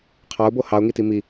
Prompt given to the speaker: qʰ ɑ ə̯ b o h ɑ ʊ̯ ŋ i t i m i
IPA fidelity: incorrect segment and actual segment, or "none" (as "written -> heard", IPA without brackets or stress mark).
ə̯ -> ʊ̯